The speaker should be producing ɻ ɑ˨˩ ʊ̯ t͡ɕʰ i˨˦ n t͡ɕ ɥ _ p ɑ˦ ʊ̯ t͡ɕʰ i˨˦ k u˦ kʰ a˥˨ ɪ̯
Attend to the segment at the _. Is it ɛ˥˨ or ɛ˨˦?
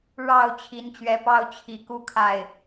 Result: ɛ˨˦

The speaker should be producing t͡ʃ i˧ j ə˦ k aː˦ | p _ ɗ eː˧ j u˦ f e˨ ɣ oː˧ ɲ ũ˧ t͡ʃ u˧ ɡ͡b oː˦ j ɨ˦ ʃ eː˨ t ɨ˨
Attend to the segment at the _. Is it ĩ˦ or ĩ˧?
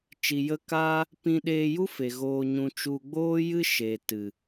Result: ĩ˧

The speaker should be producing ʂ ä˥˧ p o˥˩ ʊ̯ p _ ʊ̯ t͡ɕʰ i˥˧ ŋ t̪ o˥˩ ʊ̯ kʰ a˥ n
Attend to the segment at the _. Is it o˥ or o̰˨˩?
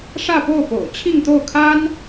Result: o̰˨˩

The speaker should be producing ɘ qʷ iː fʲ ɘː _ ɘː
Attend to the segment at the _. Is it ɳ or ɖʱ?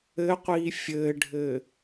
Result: ɖʱ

